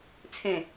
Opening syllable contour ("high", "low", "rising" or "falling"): low